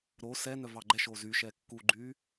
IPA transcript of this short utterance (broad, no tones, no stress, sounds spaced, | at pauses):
ɾ o s ɛ n œ v ɑ ɡ͡ǃ ɛ ʃ o z y ʃ ɛ kː u ɡ͡ǃ y